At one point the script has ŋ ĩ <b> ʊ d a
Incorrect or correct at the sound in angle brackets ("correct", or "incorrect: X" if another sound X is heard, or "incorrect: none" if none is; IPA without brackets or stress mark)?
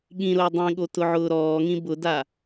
correct